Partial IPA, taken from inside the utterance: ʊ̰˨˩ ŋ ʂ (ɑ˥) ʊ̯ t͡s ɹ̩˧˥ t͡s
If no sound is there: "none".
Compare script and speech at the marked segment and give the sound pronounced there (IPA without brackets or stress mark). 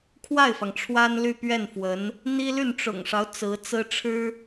ɑ˦